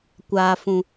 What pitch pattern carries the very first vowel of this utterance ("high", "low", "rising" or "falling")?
low